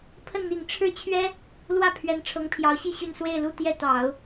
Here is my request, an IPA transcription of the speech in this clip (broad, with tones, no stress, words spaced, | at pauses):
pʰə˥˩nn̪i˨˩ŋ ʈ͡ʂʰɻ̩˥˩t͡ɕʰɥɛ˥ | lwä˥˩ pʰɥɛ˧˥nʈ͡ʂʰɤ˧˥ŋpʰjɑ˧˥ʊ̯ɕi˥˧ ɕy˥˧n swe˥˧ɪ̯lu˥˧t̪jɛ˥˩ t̪ɑ˨˩˦ʊ̯